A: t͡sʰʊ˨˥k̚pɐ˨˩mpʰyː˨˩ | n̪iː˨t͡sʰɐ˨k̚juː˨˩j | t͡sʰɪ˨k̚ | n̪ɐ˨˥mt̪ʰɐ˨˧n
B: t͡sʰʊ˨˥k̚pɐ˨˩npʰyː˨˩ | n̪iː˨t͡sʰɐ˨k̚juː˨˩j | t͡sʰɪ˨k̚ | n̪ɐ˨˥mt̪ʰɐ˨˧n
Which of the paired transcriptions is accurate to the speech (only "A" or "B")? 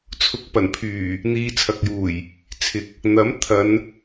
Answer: B